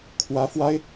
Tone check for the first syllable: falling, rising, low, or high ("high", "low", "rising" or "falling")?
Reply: rising